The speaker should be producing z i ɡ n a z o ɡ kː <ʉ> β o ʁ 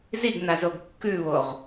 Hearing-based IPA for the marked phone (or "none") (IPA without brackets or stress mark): ʉ